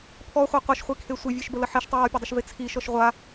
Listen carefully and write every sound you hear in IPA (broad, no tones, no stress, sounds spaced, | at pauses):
pʰ ɔ χʷ a qʷ ʌ ʃ χʷ i kʰ e sʷ e vʲ e ʃ b ə l ə ħ i ʃ tˤ ə j ɔ pʲ ə dˤ ə ʃ v e t͡sʰ i ʃ ɔ ʃ ʁʷ a